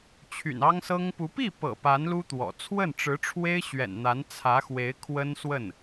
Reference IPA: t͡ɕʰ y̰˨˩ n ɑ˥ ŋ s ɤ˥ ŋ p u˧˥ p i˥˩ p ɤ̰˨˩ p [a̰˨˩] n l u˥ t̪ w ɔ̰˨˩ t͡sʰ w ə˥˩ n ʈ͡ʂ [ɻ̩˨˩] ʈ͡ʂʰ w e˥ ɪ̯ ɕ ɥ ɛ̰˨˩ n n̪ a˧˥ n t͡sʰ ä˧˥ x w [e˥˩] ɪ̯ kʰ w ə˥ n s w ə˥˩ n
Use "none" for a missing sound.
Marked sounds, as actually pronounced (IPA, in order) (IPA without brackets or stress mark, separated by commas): a˧˥, ɻ̩˧˥, e˧˥